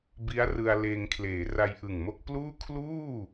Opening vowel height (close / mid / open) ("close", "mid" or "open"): close